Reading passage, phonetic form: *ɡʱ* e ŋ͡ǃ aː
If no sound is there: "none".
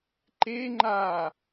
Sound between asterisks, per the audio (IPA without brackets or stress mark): ǃ